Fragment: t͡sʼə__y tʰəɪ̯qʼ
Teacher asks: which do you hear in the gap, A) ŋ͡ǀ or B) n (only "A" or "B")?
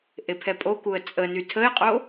B